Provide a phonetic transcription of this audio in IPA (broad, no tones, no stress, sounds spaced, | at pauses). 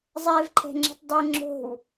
zˤ ɛ v ǃʰ ɛ̤ ŋ͡ǁ ɛ̤ tˤ dˤ e ŋ͡ǁ o̤ w